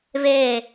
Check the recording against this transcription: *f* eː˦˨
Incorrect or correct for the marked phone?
incorrect: v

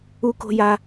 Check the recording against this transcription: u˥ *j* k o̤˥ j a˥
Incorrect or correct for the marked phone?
incorrect: none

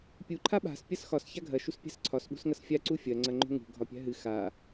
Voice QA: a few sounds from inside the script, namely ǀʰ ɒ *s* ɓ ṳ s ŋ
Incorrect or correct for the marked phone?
correct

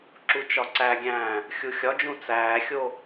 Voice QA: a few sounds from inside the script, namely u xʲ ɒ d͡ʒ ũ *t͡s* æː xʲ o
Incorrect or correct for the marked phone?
correct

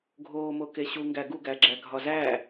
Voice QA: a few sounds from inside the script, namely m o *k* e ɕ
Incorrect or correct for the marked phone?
correct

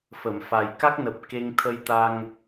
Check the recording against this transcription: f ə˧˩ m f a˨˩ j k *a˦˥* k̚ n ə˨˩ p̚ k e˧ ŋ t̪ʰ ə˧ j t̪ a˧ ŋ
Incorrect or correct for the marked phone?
correct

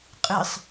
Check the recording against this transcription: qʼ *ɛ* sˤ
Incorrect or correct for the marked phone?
incorrect: ɨ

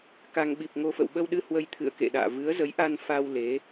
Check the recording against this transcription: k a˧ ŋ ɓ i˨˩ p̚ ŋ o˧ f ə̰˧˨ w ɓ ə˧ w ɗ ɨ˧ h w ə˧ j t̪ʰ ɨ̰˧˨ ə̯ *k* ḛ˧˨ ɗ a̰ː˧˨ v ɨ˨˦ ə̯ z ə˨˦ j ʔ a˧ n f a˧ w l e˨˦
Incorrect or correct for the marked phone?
correct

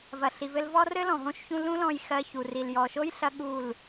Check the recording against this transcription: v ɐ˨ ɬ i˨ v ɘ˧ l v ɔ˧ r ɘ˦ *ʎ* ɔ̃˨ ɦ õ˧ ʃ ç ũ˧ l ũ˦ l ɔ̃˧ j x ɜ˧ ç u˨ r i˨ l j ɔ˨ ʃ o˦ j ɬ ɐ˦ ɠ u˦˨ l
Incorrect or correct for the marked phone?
incorrect: l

